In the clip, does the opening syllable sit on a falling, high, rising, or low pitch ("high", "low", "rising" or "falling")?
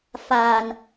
low